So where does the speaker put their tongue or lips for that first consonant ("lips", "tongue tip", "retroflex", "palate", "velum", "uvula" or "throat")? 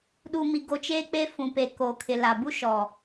tongue tip